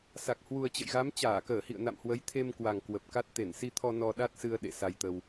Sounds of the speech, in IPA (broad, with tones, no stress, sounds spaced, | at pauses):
s a˨˩ k̚ h w u˨˩ ə̯ t͡ɕ ə̰˧˨ j ɣ a˨˦ m t͡ɕ aː˧˩ k əː˧˩ h ḭ˧˨ ə̯ n a̰˧˨ m h w ə˨˦ j t̪ʰ e˧ m k w a˨˩ ŋ k w ə˨˩ p̚ k a˦˥ t̚ t̪ e˧˩ n s i˧ t̪ʰ ɔ˧ n ɔ˧ ɗ a˦˥ t̚ s ɨ˧ ə̯ ɗ ḛ˧˨ s a˧ j t̪ ə˧ w